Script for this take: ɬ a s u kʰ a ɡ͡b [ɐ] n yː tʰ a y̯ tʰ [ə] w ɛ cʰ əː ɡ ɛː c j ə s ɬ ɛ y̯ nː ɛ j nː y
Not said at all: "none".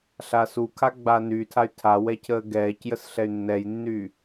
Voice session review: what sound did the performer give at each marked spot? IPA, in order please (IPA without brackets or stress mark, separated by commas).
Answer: a, a